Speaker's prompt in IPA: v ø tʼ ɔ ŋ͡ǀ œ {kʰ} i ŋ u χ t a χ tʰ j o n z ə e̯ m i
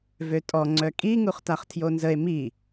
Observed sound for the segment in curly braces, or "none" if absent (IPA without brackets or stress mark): kʼ